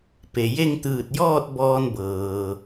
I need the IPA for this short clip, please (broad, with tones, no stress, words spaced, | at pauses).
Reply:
pe˩je˥˨ŋ t̪ɯː˧˩t̚jɔː˥˨t̚ bɔː˧nbɤː˩